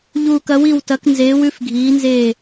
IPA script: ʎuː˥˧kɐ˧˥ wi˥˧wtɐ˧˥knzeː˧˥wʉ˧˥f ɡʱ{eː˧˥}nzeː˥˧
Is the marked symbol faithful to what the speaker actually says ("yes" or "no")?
no